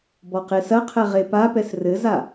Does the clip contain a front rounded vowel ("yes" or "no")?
no